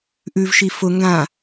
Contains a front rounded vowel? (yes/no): no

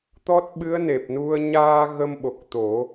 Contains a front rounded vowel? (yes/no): no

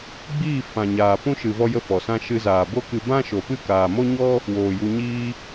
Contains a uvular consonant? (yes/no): no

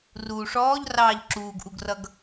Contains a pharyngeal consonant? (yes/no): no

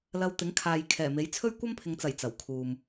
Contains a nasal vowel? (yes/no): no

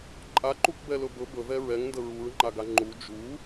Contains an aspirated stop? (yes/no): no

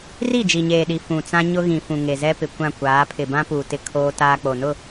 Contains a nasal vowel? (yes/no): yes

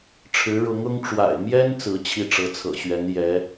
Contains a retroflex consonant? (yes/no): yes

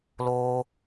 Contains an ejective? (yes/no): no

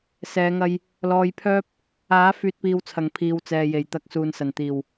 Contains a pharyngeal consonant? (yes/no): no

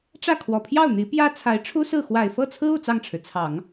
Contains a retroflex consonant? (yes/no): yes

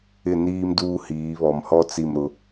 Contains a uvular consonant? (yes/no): no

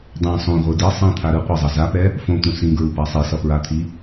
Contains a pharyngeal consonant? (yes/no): no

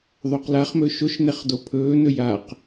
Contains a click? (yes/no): no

